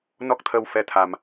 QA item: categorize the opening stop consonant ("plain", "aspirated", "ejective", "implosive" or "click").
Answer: plain